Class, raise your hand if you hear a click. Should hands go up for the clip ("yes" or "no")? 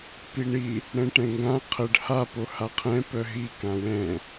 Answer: no